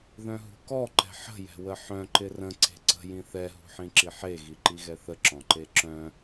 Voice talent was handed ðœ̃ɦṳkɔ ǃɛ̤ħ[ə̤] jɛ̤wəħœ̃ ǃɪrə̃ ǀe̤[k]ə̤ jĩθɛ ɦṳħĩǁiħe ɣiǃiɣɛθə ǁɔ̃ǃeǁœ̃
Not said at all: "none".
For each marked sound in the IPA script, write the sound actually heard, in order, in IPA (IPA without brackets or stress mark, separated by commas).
ə̤, ǀ